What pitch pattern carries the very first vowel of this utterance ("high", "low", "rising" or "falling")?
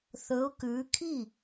rising